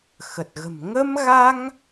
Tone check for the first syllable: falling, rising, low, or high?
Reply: low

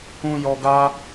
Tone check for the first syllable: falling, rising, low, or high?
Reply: low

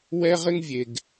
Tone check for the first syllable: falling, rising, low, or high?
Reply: high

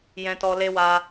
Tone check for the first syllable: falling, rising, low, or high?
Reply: high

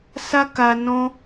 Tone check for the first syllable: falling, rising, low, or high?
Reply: high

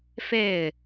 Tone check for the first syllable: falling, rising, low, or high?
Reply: falling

